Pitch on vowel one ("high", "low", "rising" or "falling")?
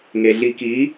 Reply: low